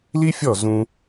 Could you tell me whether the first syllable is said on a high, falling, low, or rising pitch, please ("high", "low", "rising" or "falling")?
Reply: high